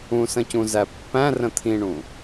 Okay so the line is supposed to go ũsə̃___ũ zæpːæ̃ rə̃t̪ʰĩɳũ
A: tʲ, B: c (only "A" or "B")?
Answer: B